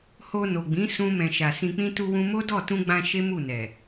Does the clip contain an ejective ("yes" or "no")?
no